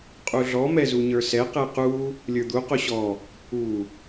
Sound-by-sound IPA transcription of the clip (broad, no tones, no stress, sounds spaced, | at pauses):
qʼ u ɮ ɔ m ɛ z u ɲ ə˞ s ɛ q ɛ q u | lʲ ə˞ d̪ u q o ɕ ɔ | u